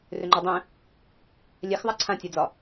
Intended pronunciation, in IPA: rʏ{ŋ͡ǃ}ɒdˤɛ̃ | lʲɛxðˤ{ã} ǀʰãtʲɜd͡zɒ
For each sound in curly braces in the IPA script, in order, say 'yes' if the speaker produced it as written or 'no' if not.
yes, no

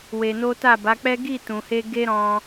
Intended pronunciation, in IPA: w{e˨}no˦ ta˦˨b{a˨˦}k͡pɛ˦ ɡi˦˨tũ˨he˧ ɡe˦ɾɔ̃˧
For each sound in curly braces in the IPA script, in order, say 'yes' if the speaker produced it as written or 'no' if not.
no, yes

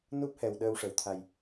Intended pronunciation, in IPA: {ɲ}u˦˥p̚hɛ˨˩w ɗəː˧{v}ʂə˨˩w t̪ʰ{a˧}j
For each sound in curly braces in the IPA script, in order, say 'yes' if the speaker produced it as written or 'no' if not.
no, no, no

